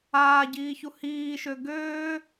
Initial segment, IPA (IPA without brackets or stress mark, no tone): aː